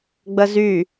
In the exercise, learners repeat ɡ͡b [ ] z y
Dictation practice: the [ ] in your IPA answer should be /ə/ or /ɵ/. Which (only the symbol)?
ə